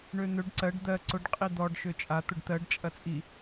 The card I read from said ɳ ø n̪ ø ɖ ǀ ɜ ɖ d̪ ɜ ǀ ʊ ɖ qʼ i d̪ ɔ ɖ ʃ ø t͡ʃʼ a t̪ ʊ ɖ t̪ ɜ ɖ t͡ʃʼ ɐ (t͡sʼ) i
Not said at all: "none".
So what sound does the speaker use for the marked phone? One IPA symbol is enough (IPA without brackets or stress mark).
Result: t͡sʼ